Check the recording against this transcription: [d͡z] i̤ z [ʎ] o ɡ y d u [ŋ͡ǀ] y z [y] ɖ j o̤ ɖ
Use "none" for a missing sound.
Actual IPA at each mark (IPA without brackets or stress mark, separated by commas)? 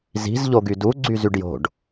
z, ʎ, ɡ͡ǀ, y